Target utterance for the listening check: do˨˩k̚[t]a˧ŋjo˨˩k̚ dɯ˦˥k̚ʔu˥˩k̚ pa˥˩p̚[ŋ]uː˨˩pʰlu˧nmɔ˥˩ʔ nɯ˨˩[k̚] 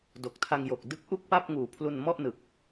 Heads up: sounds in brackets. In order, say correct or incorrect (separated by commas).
incorrect, correct, correct